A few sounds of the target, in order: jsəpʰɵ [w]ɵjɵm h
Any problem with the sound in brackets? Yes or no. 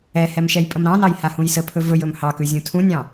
yes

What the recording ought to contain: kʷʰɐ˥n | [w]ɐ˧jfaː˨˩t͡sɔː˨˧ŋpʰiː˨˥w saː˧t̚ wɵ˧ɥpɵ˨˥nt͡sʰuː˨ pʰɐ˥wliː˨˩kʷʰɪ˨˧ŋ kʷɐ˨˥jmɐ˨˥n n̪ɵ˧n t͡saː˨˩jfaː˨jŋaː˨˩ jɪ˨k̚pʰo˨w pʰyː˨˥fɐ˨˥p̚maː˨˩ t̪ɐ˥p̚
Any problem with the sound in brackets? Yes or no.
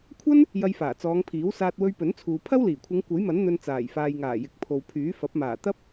yes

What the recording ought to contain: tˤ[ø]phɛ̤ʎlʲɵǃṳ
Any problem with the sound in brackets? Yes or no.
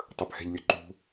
yes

